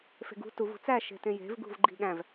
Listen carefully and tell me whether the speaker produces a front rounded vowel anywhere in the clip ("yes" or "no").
no